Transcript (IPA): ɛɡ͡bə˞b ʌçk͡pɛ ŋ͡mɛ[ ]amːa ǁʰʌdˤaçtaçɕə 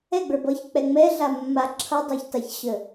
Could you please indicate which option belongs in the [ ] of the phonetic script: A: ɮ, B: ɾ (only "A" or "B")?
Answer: A